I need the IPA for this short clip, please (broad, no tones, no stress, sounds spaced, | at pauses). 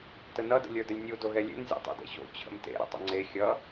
t ə n ʌ d ə̰ lʲ ə˞ d ə lʲ nʲ u d o ɣ ɛ lʲ ḛ n zʲ ɛ̰ tˤ o̰ d ḛ ɕ o̰ t͡ɕʰ ə̰ m t ḛ ɾ ə̰ tˤ ə̰ ŋ͡ǀ e xʲ ʌ